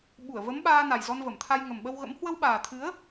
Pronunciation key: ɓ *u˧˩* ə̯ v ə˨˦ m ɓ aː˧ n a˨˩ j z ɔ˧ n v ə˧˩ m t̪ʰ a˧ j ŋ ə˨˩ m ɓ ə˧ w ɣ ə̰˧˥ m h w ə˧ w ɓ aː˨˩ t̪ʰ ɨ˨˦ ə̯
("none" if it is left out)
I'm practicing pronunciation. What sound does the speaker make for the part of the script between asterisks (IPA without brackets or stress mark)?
u˧˩